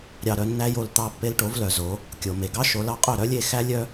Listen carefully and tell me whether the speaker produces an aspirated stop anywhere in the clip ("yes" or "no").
no